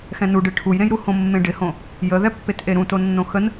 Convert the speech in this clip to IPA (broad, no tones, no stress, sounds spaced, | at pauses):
x ɛ̃ n u ɖ ɨ ʈʰ u j ɾ ẽ j ɾ u h õ mː ẽ ɖ ɪ h õ | j ə ð ɛ pː e t ʔ e ɾ ũ t o nː õ x ə n